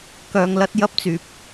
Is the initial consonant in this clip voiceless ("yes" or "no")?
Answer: yes